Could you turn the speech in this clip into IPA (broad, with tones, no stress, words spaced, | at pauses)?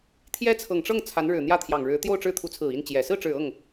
t̪ʰjɛ˥t͡sʰɤ˨˩ŋ ʈ͡ʂɤ˥˩ŋ t͡sʰa˧˥nɻɻ̩˨˩ n̪jä˥˩t̪ʰjɑ˨˩ŋɻɻ̩˧˥ t̪jo˥˧ʊ̯ʈ͡ʂɻ̩˥˩ t̪ʰu˧˥t͡sʰɹ̩˨˩i˥˩n t͡ɕjɛ˨˩ sɹ̩˥˩ʈ͡ʂɻ̩˨˩ɤ˥˩ŋ